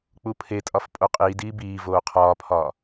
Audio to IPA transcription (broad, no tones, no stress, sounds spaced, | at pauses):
k͡p u pʰ e tʼ ɒ f pʼ o qʼ iː d iː b iː v oː qʰ ɒː pʰ ɒː